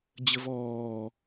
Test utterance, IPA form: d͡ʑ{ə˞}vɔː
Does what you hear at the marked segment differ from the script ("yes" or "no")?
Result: yes